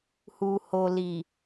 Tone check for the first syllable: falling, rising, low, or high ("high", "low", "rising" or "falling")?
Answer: low